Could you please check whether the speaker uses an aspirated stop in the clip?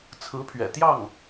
yes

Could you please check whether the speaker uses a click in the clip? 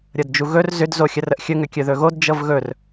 no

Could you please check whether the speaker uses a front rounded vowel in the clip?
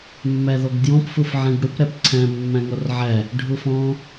no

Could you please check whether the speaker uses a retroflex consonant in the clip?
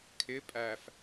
no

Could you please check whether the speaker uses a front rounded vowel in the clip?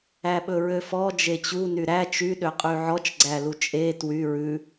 yes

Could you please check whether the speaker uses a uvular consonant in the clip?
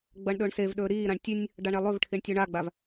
no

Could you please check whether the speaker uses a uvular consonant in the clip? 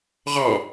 yes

